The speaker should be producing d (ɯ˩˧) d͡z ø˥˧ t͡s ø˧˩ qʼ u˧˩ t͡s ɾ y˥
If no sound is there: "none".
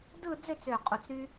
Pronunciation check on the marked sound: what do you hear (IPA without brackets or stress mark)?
ɯ˥˧